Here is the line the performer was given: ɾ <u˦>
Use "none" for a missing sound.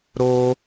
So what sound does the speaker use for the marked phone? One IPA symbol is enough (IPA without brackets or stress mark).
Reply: o˦